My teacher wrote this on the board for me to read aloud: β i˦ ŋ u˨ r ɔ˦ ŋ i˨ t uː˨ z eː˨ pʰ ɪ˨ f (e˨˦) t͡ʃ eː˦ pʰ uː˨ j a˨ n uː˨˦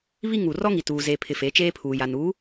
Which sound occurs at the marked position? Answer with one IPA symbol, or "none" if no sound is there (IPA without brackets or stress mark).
e˨˦